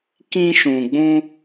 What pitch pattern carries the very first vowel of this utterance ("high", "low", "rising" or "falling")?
high